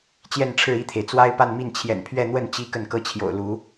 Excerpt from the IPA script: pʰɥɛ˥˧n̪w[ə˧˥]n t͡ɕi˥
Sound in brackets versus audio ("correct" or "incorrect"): incorrect